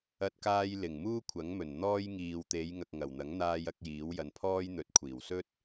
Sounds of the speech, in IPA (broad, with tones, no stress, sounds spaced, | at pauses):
ɐ˧ t̚ k aː˧ j l ɪ˨˩ ŋ m uː˥ kʷʰ ɐ˨˥ ŋ m ɵ˨˩ n n̪ ɔː˥ j ŋ iː˨ w t̪ e˨˧ j ŋ ɐ˨ k̚ ŋ ɐ˨˩ w n̪ ɐ˨˥ ŋ n̪ aː˧ j ɐ˨˥ k̚ j iː˨˥ w j ɐ˨ n pʰ ɔː˥ j n̪ ɵ˨˥ t̚ kʷʰ iː˨˩ w s ɵ˥ t̚